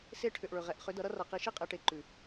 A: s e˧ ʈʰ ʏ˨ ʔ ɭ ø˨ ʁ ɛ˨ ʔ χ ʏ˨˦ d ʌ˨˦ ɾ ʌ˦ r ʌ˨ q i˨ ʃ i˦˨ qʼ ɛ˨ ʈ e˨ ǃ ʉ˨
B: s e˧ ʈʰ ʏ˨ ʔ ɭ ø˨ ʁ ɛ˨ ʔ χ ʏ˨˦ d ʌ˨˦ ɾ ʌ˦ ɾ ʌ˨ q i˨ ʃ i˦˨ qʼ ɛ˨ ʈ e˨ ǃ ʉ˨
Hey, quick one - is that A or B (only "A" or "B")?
A